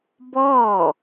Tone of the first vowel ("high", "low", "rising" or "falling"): falling